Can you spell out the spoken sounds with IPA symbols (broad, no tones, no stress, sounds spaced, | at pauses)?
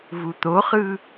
v u t̪ o χ ɯ